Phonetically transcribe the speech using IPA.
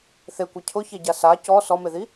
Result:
θekʷɛ cʰʊçeɟa sa cɔ sɔmeði

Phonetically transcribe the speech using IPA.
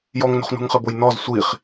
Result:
jɔŋno̤χnṳŋχɘ bojnɔz sʷiχ

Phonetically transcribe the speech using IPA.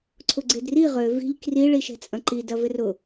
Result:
ǀʰʊɡ͡ǀedri ʁø vi̤ʎ kri ɭiʃɛ̤t͡sʼɐ̃ǃi dɐvɪrʊ

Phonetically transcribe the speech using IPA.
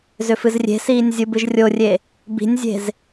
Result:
zʏfɨzrʲe̤siːnʲ zʲɯbɨʒrʲorʲe | bi̤nʲzʲe̤z

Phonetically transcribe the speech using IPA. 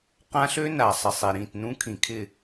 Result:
qã˦ɬø˦na˨ sˤɪ˨sˤi˨ɾĩ˨tnũ˦ kʰĩ˨kʰɪ˦˨

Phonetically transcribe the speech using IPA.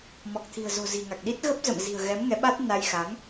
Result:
mɔ˨˩k̚t̪ʰi̤˨˩ə̯zo̤˨˩zi̤˨˩ ŋa˨˩k̚ɗi˦˥t̚ ɣə˦˥p̚zə̰˧˨mzi̤˨˩ə̯ɣɛ˨˦m ŋɛ˨˦ɓa˦˥t̚ na˧jxa˨˦ŋ

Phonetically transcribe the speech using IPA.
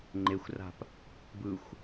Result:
ŋ͡ǃexʷra̤p | bɯxʷ

